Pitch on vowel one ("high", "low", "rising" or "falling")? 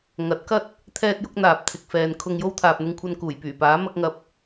rising